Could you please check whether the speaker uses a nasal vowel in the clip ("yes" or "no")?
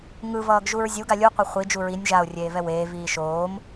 no